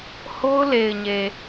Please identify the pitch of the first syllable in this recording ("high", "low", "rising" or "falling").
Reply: high